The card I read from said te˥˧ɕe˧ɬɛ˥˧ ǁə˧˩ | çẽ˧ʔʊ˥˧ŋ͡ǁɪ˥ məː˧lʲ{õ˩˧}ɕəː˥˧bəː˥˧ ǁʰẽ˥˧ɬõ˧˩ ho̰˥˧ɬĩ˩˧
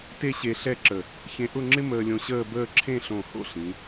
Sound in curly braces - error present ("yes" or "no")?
yes